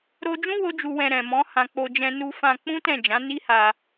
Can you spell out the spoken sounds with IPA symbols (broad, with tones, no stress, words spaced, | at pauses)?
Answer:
ɾo˧d͡ʒũ˦ wo˦d͡ʒu˧wɛ̃˧ ɾɛ̃˨mɔ̃˨˦hã˧ k͡po˧d͡ʒɛ̃˧ nu˧fã˧k͡pũ˦ tɛ̃˦˨d͡ʒã˨˦ni˦ha˧